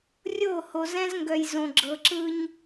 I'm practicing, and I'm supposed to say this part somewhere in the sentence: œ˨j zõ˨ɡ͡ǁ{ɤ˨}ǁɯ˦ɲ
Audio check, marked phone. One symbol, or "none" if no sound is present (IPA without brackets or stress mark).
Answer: ɤ˨